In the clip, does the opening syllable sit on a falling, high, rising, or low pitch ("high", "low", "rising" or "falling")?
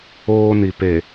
high